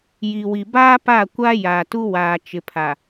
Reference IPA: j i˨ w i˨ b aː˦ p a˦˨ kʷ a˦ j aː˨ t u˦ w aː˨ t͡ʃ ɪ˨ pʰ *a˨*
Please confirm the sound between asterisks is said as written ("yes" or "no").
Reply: yes